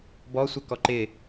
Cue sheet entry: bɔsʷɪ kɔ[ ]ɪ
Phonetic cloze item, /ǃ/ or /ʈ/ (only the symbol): ǃ